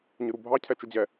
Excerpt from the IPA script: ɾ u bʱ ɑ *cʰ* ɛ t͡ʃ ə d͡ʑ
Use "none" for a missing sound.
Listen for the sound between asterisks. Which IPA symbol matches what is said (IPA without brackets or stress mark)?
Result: cʰ